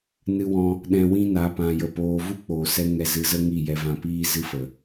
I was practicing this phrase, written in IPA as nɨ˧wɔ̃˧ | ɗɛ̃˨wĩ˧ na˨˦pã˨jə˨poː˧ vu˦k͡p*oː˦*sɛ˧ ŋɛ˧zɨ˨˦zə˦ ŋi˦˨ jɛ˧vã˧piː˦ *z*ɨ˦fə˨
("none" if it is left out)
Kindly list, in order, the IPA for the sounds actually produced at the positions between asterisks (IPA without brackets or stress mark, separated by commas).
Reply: oː˨, z